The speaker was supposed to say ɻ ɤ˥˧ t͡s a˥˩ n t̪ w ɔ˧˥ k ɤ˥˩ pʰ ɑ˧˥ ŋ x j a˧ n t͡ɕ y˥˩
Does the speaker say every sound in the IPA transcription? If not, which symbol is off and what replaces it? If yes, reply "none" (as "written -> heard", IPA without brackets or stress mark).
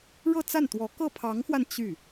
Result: j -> w